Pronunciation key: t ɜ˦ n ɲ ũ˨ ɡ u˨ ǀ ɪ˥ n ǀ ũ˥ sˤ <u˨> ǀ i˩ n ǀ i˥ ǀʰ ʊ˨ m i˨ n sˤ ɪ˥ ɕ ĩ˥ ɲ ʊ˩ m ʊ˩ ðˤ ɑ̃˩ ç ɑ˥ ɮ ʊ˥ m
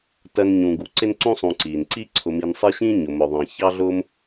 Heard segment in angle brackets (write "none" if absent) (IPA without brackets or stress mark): ũ˨